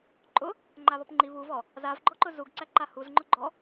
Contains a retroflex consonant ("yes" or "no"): no